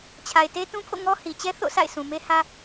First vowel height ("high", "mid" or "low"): low